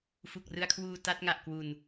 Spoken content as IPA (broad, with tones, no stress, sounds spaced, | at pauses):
f u˨˩ k̚ r ɯ˧ a̯ kʰ w uː˧ t a˦˥ t̚ ŋ a˨˩ ʔ k w u˨˩ n